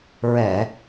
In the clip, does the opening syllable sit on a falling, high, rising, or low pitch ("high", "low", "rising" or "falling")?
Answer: low